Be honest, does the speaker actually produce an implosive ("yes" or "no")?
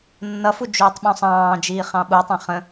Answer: yes